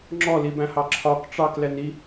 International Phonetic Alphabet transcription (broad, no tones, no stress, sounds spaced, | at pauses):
ŋ͡ǁ ɔ l i b æ̃ h ɑ ǁʰ ɒ k ʈ͡ʂ ɑ k l ɛ n i